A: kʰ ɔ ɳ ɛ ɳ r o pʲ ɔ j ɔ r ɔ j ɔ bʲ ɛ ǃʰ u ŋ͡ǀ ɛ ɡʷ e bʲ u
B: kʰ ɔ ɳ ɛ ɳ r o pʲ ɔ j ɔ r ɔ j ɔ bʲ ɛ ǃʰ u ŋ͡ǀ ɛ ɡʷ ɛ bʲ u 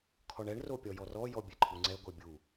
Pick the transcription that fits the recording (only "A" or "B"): B